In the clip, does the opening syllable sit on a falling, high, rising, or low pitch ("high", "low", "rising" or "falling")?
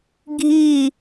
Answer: falling